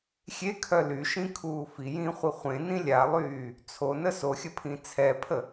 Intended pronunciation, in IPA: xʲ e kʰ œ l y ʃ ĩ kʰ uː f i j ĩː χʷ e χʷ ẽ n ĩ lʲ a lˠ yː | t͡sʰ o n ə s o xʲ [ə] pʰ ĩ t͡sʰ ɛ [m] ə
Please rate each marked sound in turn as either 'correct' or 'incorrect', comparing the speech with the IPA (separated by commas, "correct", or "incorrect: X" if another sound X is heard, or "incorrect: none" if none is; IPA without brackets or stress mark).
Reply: correct, incorrect: pʰ